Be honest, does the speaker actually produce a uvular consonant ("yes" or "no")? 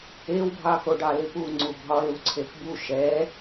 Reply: no